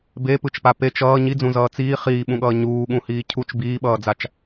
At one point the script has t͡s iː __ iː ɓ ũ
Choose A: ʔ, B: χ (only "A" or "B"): B